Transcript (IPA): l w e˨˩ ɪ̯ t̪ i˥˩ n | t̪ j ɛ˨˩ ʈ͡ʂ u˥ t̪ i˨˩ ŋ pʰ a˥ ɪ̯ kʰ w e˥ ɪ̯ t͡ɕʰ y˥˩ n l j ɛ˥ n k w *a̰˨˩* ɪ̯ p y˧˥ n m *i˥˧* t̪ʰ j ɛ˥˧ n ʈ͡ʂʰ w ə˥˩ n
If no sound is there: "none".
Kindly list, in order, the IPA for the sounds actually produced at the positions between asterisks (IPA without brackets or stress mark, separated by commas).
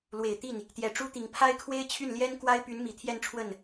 a˥, i˨˩